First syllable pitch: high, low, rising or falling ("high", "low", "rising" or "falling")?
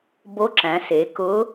rising